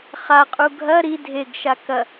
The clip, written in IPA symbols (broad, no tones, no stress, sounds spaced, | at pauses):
χ a qʼ u ɡʱ ɐ ɾ i dʱ e ɡ ʃ a k ɐ